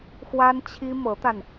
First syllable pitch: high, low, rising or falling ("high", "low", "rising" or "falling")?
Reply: high